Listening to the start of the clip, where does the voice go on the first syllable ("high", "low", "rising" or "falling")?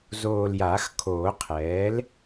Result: low